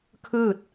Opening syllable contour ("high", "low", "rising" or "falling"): falling